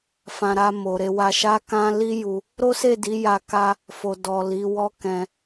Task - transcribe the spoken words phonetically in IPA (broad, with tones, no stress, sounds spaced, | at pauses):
f ã˨ ɾ a˧ m o˨ ɾ e˧ w a˧ ʃ a˦ k ã˦ l i˦ j u˧ | ɾ o˦ s e˦˨ d i˨˦ j a˧ k a˦ | f o˨ d ɔ˨ l i˨˦ w ɔ˦ k ɛ̃˧